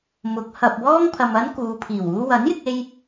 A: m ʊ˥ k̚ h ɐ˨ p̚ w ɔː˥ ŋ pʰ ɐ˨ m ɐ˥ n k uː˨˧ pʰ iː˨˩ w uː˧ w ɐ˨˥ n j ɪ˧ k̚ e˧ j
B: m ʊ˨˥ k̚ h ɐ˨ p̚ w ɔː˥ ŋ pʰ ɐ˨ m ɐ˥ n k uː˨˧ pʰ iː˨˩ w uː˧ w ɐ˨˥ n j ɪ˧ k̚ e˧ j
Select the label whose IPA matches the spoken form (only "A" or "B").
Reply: B